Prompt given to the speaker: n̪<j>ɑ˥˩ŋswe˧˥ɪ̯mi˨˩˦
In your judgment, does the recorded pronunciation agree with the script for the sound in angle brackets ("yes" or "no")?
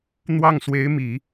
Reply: no